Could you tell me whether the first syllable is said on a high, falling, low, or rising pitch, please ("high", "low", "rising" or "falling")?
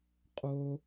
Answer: high